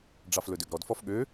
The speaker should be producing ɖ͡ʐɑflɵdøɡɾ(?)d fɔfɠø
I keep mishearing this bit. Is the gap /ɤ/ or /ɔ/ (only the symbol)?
ɔ